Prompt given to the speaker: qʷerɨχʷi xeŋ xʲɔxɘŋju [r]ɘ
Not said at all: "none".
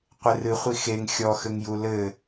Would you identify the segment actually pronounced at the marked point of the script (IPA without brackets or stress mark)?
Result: l